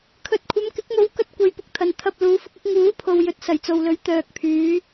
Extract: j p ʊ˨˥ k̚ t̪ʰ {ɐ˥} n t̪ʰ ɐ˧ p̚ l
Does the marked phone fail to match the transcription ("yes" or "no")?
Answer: yes